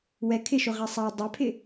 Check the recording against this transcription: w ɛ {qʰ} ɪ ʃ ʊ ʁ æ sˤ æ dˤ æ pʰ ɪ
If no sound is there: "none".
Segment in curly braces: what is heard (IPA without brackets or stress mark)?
kʰ